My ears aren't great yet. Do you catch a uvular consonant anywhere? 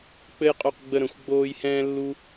yes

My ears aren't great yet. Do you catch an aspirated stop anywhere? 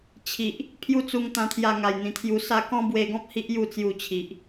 yes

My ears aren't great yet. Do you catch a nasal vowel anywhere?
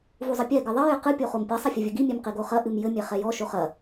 no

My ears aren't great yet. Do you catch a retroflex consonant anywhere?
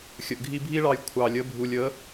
yes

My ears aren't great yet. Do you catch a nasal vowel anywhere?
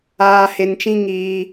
yes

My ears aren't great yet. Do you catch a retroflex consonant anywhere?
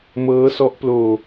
no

